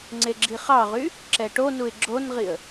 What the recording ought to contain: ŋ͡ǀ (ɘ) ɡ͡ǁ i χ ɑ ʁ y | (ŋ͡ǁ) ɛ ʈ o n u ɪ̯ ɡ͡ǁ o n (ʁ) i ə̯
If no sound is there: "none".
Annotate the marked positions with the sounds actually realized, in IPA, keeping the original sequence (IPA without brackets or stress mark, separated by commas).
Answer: e, ǁ, ʁ